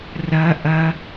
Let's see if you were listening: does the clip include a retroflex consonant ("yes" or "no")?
no